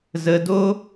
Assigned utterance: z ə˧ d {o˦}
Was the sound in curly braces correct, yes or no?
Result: yes